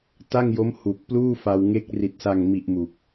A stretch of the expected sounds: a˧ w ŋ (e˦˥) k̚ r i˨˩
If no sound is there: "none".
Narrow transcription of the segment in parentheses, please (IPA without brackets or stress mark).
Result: e˦˥